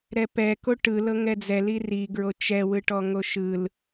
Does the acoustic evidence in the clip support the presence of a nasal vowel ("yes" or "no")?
no